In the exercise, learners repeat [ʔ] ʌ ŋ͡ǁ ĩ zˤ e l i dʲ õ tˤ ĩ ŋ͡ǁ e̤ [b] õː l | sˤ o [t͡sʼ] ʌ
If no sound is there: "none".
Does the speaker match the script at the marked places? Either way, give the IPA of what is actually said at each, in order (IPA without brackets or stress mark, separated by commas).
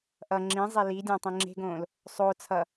ʔ, ɡ, t͡sʰ